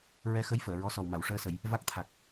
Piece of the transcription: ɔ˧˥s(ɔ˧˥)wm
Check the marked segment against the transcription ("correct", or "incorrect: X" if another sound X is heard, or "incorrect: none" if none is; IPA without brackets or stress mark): incorrect: ɔ˨˩